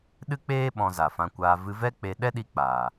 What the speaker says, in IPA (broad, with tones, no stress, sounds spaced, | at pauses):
ɗ ɨ˦ k͡p eː˦ ɓ ɔ̃˧ z a˨ f ã˧ kʷ aː˧ v ɨ˧ v ɛ˦ k͡p e˧ ɗ ɛ˦ ɗ i˧ k͡p aː˨